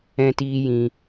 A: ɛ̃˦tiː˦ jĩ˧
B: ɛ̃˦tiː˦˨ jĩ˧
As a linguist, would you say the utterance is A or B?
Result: A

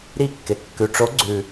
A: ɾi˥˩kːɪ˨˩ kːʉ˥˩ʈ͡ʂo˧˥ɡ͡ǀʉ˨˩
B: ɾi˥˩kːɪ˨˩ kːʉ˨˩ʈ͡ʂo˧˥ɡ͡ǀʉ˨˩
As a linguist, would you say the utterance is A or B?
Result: B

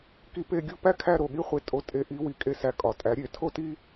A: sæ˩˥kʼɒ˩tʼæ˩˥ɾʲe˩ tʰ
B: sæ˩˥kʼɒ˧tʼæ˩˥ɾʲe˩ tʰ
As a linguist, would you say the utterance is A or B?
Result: A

